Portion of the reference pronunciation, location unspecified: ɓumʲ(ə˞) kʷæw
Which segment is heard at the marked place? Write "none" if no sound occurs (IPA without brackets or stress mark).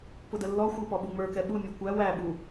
ə˞